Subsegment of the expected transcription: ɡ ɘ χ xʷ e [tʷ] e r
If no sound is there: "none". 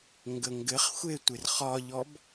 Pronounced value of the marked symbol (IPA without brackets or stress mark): tʷ